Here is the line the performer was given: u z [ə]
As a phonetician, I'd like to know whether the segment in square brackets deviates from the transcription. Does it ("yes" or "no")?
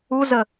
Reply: no